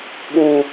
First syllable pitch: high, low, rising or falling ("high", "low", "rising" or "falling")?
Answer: low